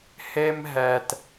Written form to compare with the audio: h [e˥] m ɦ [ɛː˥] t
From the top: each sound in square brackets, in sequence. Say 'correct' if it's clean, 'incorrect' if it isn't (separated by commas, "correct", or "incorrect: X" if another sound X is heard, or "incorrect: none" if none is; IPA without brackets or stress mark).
correct, incorrect: ɛː˧